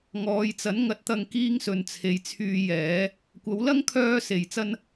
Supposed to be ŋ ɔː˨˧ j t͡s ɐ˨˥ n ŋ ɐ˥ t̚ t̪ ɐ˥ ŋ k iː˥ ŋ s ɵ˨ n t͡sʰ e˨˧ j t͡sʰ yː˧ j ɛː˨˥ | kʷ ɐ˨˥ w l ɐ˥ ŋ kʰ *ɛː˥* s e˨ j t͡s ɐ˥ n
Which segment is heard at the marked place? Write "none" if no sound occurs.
œː˥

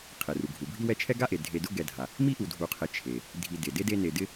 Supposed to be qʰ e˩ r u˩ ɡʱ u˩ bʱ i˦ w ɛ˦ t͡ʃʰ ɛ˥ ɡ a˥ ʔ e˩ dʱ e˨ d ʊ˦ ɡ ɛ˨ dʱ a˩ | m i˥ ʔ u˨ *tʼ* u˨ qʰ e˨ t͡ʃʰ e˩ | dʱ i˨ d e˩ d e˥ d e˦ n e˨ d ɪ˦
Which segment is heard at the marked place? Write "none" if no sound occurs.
dʱ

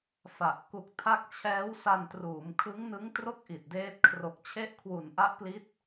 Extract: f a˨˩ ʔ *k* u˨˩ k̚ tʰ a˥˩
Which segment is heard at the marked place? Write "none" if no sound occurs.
k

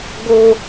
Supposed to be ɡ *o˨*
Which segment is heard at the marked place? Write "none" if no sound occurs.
o˦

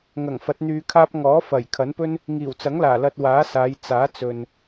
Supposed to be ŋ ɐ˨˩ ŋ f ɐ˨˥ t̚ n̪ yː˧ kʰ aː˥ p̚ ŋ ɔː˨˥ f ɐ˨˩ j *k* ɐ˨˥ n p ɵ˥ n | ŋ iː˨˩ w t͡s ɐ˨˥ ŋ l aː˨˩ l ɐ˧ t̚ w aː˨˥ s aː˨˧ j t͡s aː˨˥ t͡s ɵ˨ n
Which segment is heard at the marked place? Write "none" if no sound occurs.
kʰ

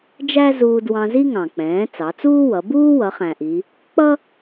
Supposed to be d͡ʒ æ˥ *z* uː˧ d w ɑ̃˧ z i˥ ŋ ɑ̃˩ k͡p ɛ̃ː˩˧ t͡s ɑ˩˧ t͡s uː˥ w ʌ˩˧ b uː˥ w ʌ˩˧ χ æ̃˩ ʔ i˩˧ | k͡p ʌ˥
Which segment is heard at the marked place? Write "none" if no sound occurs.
z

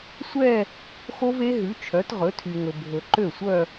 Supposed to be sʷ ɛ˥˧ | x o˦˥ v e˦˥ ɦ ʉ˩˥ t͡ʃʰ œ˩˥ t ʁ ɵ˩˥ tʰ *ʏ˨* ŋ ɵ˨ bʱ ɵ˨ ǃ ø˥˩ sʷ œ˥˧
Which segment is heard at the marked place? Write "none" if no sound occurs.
y˨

